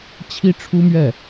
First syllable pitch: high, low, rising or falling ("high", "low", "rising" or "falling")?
high